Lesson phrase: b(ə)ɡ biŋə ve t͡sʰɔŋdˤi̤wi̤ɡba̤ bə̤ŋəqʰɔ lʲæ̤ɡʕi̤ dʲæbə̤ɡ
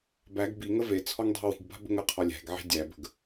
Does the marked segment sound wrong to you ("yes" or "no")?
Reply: yes